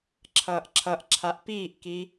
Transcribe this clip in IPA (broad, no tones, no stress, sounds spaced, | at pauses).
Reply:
ǁʰ ʌː ʔ ǁʰ ʌ ʔ ǁʰ a ʔ p iː ʔ k i